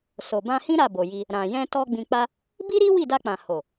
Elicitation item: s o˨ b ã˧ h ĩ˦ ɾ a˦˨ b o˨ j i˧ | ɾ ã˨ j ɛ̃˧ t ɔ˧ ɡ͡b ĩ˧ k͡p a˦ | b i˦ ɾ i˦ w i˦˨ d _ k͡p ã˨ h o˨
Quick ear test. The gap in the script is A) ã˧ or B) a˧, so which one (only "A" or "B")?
B